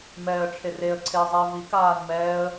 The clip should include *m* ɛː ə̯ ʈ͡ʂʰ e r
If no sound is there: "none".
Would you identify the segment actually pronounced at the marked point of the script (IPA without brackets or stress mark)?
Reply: m